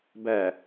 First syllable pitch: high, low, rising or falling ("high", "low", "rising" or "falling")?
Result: low